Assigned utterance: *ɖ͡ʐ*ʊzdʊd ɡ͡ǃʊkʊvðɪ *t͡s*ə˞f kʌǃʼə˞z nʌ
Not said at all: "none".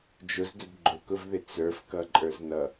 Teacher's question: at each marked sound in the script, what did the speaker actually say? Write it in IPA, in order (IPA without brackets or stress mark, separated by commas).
d͡ʒ, t͡s